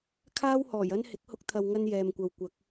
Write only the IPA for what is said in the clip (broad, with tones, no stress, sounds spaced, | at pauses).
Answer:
kʰ aː˥ w h ɔː˨˩ j ɐ˥ n h ɪ˨˥ k̚ h ʊ˧ k̚ t̪ʰ ɐ˨ w ŋ ɐ˧ n j ɛː˨ m kʷ ɐ˨ w kʷ ɐ˨˥ k̚